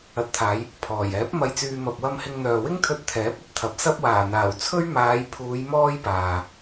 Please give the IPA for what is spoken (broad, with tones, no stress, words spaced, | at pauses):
ɐ˨˥t̚t̪ʰaː˨˧j | pʰɔː˨˩jɛː˨˥p̚ mɐ˧jt͡syː˧ mɐ˨p̚wɐ˧mhɪ˧ŋn̪œː˨ wɪ˥ŋt̪ʰɵ˧t̚ t̪ʰɛː˨˥p̚ɵ˥t̚t̪ʰɐ˨p̚ sɐ˧p̚waː˨˩n̪aː˨˩w t͡sʰɵ˥ɥ maː˨˧jpʰuː˨˧j mɔː˥jpaː˨